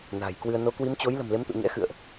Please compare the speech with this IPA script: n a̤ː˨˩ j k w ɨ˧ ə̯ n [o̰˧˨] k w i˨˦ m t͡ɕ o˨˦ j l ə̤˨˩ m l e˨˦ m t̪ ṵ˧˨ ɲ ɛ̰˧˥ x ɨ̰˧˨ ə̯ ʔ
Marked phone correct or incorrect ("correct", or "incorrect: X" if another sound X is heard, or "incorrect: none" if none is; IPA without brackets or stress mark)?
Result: incorrect: o˨˦